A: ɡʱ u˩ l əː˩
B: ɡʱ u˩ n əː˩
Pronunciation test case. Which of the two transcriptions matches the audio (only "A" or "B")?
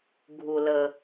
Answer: A